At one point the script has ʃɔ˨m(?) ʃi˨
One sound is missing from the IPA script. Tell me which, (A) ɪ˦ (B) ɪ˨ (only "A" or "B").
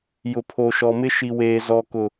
A